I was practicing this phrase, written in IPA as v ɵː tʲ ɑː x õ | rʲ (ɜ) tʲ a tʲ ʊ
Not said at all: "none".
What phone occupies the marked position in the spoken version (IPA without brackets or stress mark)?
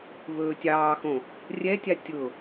ɛ